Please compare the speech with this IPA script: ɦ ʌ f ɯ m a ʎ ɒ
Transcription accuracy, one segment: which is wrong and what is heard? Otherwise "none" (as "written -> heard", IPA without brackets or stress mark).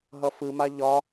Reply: none